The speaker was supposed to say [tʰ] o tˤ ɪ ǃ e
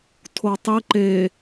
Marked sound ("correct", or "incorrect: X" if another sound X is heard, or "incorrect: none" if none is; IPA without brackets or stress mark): correct